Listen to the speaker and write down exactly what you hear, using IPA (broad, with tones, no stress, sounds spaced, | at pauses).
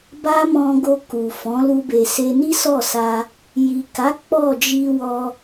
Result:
b a˦ m ɔ̃˧ ɡ o˧ k u˨ f ɔ̃˨˦ l u˧ b e˨ s e˧ n i˦ s ɔ˦˨ s a˧ | j i˨ k a˨˦ k͡p ɔ˦˨ d͡ʒ i˧ w ɔ˧